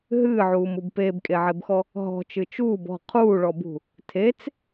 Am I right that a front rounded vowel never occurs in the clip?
yes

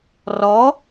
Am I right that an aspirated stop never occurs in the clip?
yes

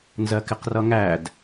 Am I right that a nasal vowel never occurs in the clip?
yes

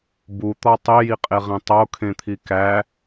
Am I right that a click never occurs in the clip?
yes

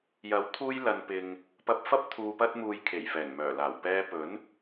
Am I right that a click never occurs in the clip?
yes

